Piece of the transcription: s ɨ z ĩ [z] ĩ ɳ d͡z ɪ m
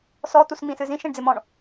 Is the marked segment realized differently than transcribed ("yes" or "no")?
yes